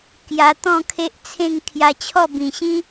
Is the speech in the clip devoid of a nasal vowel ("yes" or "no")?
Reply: no